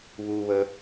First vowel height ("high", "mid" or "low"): high